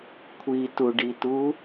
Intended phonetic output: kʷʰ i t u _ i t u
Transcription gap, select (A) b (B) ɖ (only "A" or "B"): B